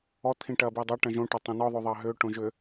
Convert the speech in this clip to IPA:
ɔ t̪ʰ ĩ ʈ ɐː b i dˤ ɐ ʈ ɐ̃ ʒ õ ʈ ɐ tˤ õ n ɔ ðˤ o ðˤ ɐː ɦ ʏː ʈ õ ʒ ʏ

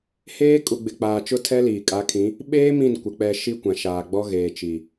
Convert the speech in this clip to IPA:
h eː˦ kʼ u˨ ɡ͡b ɪ˨ k͡p aː˨ t͡ʃ ʊ˦ tʰ ɛ˦ l iː˨ kʼ a˨˦ kʰ ĩ˨˦ | ɓ eː˦ m ĩ˦˨ n kʷ ɪ˨ k͡p ɛ˨ ʃ i˦ kʷ ã˨ ʃ aː˨ ɡ͡b ɔ˦ ɣ eː˨ t͡ʃ i˨

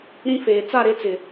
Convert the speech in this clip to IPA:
ɾ ĩ˦ f eː˨ t͡s a˦˨ ɾ e˦ t͡s ɪ˨

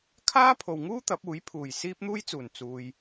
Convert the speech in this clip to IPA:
kʰ aː˥ pʰ o˨ w ŋ uː˥ t̪ ɐ˨˥ p̚ uː˨˥ j pʰ uː˨˩ j s iː˥ p̚ n̪ uː˥ j t͡s uː˨˩ n t͡s uː˨ j

